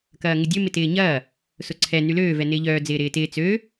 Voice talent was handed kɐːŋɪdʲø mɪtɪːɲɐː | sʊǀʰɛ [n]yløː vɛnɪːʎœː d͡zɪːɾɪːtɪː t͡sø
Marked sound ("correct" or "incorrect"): correct